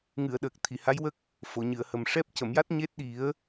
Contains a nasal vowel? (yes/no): no